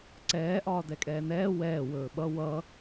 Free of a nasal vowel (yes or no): yes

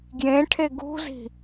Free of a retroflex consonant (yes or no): no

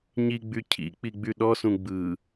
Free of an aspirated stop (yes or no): no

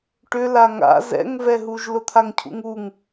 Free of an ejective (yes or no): yes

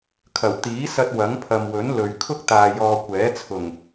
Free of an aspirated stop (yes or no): no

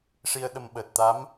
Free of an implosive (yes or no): no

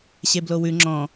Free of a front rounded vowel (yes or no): yes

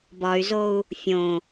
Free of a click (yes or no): yes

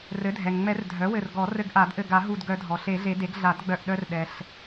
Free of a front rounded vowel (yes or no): no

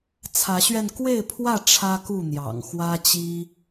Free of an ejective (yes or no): yes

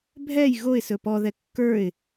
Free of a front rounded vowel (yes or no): yes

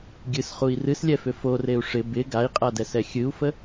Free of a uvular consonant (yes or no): no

